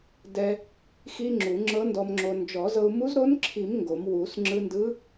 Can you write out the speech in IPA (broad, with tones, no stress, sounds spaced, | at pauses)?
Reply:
d ɛ˧ | x i˧ ŋ͡ǁ u˨˩˦ ŋ͡ǁ ɤ˧˥ n d ɔ˧ m ŋ͡ǁ o˧ n d͡ʒ ɔ˨˩˦ z ɤ˧ u̯ m u˧˥ z ɾ o˧˥ n ǁʰ i˨˩˦ m ŋ ɡ o˨˩˦ m w u˨˩˦ s ŋ͡ǁ ɯ˧ n d ɯ˧˥